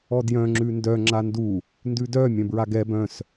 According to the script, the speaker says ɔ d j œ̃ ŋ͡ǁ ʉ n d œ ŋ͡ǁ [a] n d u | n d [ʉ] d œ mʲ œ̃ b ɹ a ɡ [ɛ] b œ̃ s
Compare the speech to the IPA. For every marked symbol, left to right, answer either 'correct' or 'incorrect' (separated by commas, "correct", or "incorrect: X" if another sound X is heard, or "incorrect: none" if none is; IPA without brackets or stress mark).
correct, correct, correct